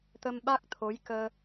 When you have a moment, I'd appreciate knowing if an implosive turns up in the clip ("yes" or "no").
yes